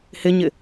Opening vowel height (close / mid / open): close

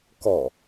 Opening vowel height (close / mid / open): mid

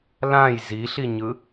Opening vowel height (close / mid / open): open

